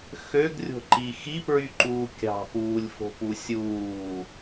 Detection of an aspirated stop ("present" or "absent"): absent